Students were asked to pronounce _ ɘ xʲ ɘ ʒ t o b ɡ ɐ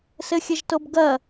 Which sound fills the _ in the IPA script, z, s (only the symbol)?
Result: s